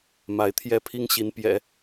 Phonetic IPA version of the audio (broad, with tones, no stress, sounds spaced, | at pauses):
m a˧˥ ɪ̯ t̪ʰ j ɛ˥˩ pʰ i˥ ŋ ɕ i˧˥ n p j ɛ̰˨˩˦